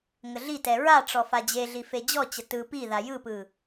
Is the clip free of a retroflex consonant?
no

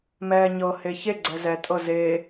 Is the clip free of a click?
no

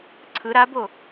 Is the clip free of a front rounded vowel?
yes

